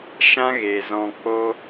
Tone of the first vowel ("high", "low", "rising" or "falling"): high